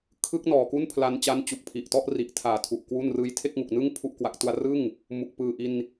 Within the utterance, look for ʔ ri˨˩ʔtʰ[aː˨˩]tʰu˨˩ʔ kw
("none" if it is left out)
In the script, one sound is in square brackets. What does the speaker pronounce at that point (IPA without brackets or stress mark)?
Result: aː˨˩